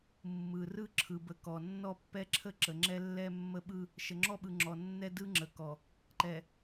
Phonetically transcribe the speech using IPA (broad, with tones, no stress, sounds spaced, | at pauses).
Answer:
mː ɯ˨ r ɯ˦ ǁʰ ɯ˨ b ə˨˦ k ɔ˨ nː ɔ˦ pː ɛ˦ ǁʰ ə˦ ǁ ə˨ ŋ͡ǁ ɛ˦ lː ɛ˦ mː ə˦ ɓ ɯ˦ | ʃ ə˨ ŋ͡ǁ ɔ˦ ɓ ɯ˨ ŋ͡ǁ ɔ˨ nː ɛ˦ d ɯ˦ ŋ͡ǁ ə˨ k ɔ˨ | ǃ ɛ˨